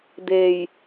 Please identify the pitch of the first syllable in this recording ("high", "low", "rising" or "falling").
low